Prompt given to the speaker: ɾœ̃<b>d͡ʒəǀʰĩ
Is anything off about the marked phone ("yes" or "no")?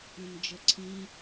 yes